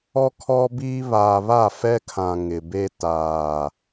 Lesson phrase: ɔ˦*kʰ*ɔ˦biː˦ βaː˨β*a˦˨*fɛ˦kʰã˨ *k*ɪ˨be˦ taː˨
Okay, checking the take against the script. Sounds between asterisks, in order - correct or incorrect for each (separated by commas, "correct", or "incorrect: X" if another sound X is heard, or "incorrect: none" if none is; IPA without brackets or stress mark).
correct, correct, incorrect: ŋ